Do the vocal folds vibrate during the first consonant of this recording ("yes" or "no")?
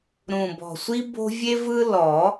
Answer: yes